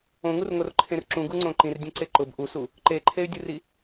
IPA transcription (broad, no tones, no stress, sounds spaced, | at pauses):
õ ŋ u r ŋ o r ǃʰ ẽ r ǁ ũ ɡ u ŋ͡ǀ õ ǃ ĩ r dʲ ɛ̃ ǀ e ǃ ʊ b ʔ u s u | ǃ e ǃʰ e y̯ dʲ u r i